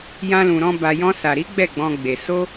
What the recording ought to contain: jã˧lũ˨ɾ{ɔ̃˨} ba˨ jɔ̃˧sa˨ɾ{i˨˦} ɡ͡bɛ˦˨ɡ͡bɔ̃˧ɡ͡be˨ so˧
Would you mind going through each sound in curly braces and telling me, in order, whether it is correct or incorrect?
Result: incorrect, correct

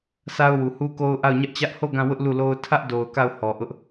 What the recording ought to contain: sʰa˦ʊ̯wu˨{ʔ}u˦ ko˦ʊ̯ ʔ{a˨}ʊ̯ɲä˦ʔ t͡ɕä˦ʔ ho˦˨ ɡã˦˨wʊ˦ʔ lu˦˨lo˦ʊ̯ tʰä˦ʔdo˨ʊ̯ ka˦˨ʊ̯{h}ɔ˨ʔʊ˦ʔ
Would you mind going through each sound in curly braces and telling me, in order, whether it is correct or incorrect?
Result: incorrect, incorrect, correct

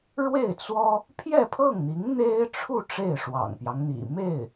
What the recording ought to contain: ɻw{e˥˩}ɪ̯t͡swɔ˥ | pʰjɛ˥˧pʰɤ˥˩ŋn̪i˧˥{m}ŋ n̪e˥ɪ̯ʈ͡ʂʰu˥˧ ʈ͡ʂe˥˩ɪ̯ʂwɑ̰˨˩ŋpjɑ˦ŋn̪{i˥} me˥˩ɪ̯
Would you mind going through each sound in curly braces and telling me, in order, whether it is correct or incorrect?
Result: correct, incorrect, incorrect

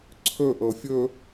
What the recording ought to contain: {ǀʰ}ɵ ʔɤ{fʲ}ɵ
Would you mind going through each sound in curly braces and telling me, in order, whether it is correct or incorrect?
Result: correct, correct

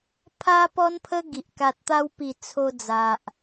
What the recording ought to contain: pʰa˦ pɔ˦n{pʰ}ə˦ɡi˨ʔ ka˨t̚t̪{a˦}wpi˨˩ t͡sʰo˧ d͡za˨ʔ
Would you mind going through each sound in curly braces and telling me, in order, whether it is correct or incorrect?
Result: correct, incorrect

